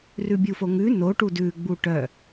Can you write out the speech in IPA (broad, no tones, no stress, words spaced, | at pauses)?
rʉbʲufoŋʉ no ʈudʉ ɡ͡buʈœ